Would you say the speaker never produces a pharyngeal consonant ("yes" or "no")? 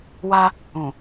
yes